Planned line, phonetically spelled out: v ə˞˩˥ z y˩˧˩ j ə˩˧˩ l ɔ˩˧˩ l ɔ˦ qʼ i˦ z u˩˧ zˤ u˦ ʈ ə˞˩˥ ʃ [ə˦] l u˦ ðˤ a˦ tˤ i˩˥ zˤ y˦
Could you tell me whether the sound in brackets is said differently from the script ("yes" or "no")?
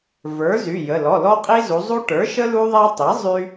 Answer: no